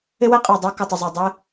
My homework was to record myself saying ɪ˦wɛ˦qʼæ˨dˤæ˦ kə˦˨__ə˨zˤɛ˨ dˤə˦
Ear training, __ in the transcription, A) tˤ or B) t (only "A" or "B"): A